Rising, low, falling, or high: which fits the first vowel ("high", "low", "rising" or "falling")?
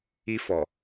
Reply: high